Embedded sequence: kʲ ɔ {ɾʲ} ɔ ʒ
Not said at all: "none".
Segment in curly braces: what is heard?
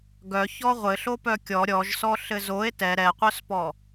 ɾʲ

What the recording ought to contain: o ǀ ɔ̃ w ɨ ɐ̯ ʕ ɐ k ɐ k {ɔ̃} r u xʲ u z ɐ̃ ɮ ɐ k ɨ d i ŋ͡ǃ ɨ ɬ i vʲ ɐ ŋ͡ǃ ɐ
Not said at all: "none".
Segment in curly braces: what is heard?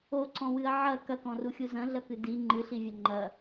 ɔ̃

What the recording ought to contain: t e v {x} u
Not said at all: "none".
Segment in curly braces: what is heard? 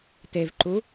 ǃ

